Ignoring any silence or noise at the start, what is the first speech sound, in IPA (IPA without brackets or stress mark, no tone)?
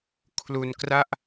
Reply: kʰ